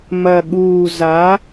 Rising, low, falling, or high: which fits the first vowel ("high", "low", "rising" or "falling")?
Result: low